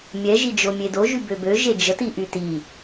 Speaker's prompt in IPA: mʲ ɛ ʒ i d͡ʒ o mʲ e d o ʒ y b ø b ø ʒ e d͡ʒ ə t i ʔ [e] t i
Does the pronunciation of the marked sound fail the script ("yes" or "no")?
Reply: yes